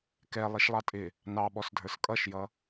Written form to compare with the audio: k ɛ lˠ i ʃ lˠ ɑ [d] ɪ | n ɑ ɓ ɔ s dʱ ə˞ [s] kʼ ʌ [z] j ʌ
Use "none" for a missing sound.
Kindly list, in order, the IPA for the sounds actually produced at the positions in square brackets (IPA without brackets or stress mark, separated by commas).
tʼ, s, ʃ